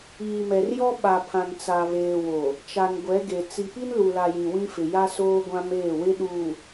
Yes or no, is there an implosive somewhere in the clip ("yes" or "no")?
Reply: yes